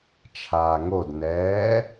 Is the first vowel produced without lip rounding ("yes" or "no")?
yes